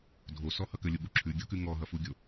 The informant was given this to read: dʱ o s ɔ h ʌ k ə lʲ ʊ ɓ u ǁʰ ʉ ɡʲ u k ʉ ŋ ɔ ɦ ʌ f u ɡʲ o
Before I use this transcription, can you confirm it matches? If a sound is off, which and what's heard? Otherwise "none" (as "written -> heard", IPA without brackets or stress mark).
none